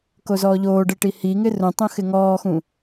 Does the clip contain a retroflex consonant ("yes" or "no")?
yes